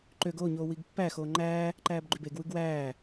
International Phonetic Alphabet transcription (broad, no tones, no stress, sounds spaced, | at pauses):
ǃ ø ɡ oː ɲ oː w i ɡ pː æ x oː ŋ͡ǃ æː | ǃ æː b ɡ͡ǃ y b e ɡ w ɯ ɡ w æː